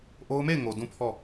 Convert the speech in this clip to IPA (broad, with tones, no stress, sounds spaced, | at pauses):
ʔ o˦ ʊ̯ m e˦˨ ɪ̯ ŋ o˨ d ũ˦˨ pʰ ɔ˦˨